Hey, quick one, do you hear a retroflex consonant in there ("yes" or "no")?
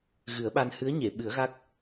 no